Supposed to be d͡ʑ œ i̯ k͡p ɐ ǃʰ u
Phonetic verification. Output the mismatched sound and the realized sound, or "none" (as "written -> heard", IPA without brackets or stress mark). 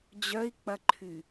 u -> y